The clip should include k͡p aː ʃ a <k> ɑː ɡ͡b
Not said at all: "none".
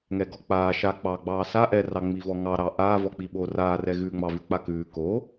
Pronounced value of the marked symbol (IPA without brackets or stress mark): k͡p